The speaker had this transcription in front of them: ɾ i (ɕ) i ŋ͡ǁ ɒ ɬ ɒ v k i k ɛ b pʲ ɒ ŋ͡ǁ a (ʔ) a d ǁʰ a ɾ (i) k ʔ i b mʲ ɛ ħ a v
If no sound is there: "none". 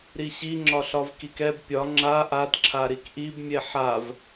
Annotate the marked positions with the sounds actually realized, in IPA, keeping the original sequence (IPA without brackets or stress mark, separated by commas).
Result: ɕ, ʔ, i